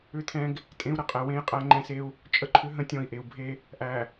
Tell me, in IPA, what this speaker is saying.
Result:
ʏ˦ t̪ʰ ɛ̃˦ ɡ | tʼ ẽ˦ u̯ ɾ ə˦˨ qʼ ɛ˨ w ẽ˦ j qʼ æ˦ ŋ͡ǃ ɛ̃˦ s e˦ u̯ | t͡ʃʼ ə˦ ǃʰ ʏ˦ ɦ ə̃˦ tʲ ɔ̃˦˨ i̯ ʔ e˨ u̯ bʱ e˦ | ʔ æ˨

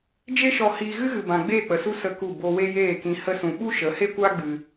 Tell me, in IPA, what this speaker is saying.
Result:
d͡ʒ e˦ ʃ ɔ˧ h iː˧ ɣ ɨ˦ ɣ ɨ˨ b ã˨ ɡ͡b eː˦˨ k͡p ə˨ s u˦ s ə˦˨ k u˦˨ b o˧ w e˦ j eː˦˨ k ĩ˧ h ə˧ s ũ˨ ɓ u˦ ʃ ə˨˦ h e˦ kʷ aː˦ ɡ͡b ɨ˧

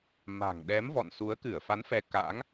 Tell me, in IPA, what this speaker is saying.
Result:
m a̤˨˩ ŋ ɗ ɛ˨˦ m v ɔ̰˧˨ n s u˨˦ ə̯ k ɨ˧˩ ə̯ f a˨˦ n f ɛ˨˦ k a̰˧˥ ŋ

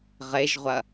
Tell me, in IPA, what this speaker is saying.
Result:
ʁ e ʒ ʁʷ ɐ

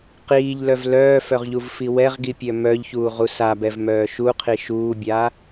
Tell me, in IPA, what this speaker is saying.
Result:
q iː ʎ l œ v l œː f œ ʁ ʎ u v f i w ɛ ʁ ɡ i pʲ œ m œ ʎ ç uː ʁ u s a b ɛ v m œː ʃ u qʰ i ʃ uː bʲ aː

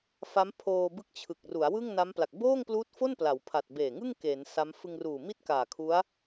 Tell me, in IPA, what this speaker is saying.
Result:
f a˦˥ m pʰ oː˧ b ɯ˦˥ k̚ t͡ɕʰ ɯ˨˩ k̚ r u˩˦ a̯ w ɯ˥˩ ŋ n a˦˥ m p l a˨˩ k̚ b oː˥˩ ŋ p l uː˦˥ t̚ f o˥˩ n p l a˩˦ w pʰ a˨˩ t̚ b eː˨˩ ŋ ɯ˥˩ ŋ k e˩˦ n s a˦˥ m f ɯ˧ ŋ r uː˨˩ m i˥˩ t̚ k aː˨˩ kʰ u˦˥ a̯

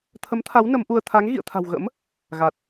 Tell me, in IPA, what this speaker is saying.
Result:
t̪ʰ ə˨˦ m t̪ʰ a˨˦ w n ə˨˦ m ʔ u˧ ə̯ t̪ʰ a˨˦ ŋ ɣ ḭ˧˨ ə̯ t̪ʰ a̤˨˩ w ɣ ə̰˧˥ m | ɣ a˨˩ t̚

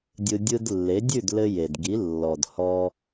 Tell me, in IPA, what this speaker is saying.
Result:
dʲ ɯ˧ dʲ ɯ˧ d lː e˩˥ dʲ ʉ˥˩ d l ɘ˧ j e˩ d ɡ i˩˥ lː ɔ˩ d h ɔ˧

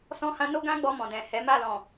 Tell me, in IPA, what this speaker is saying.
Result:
s ɔ̃˦ h ã˦ n o˦ ɡ ã˦ ɡ͡b ɔ˧ m ɔ̃˨ d ɛ̃˨ h ɛ˨˦ m a˦˨ l ɔ̃˨

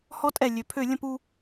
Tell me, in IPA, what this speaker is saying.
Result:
h ɔ˨˥ tʼ ɛ˩ lʲ ø˩˧ pʰ ø˧˩˧ lʲ ə̃˧˩˧ p u˧

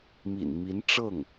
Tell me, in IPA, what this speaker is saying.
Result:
m ḭ˨˩ n m i˧˥ n ʈ͡ʂ ɤ˥˩ ŋ

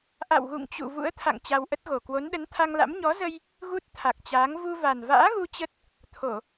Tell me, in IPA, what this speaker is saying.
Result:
ʔ a̰˧˨ w ɣ ṵ˧˨ ŋ t͡ɕ ṵ˧˨ v ṵ˧˥ ə̯ t̪ʰ a̰˧˨ ŋ t͡ɕ a˧ w ʔ ə˦˥ t̚ ɣ o˨˩ k w o˨˦ n ɗ ə˨˦ n t̪ʰ a˧ ŋ l a̰˧˥ m ɲ ɔ˨˦ z ə˧ j | ɣ u˦˥ t̚ t̪ʰ a˨˩ k̚ t͡ɕ aː˨˦ ŋ v u˧ v a˨˩ n v a̰ː˧˥ ɣ u˧ t͡ɕ ə˦˥ t̚ | t̪ʰ o˧˩˨

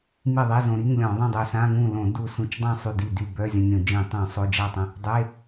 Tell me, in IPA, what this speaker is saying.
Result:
m i˥˩ ðˤ i˧˥˧ z õ˧ ɾ i˧˥˧ ŋ lʲ ɔ̃˧˩˧ ðˤ ĩ˥˩ dˤ ø˧˩ s ã˧˥˧ ŋ ũ˥˩ l õ˧˩˧ d u˧˩ s ũ˧˩ t͡ʃ dˤ ã˥˩ sˤ y˥˩ d i˥˩ d y˥˩ b œ˧˥˧ zʲ ə̃˧ nʲ õ˧˩˧ d͡ʒ ĩ˧˩˧ tˤ ũ˧˩˧ sˤ o˧˥˧ d͡ʒ a˥˩ tˤ ə̃˧ | dˤ e˧˥˧

